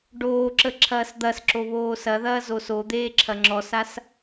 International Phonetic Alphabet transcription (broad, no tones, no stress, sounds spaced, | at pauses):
ɖ oː ǁ ə ǁʰ ɐː s d̪ ɐ s ǁ o β oː s ɐ ð ɐː z o s o d̪ eː ǁʰ ɐ ŋ͡ǁ ɔ s a s